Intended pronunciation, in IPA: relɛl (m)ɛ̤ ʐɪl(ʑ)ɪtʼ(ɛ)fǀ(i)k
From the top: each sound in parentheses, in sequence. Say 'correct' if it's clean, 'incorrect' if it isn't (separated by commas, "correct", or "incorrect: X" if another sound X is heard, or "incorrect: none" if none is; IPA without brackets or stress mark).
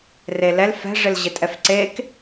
incorrect: f, correct, correct, incorrect: e